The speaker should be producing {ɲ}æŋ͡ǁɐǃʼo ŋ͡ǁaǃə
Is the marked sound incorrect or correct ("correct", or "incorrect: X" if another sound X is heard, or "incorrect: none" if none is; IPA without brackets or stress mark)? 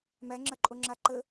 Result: incorrect: m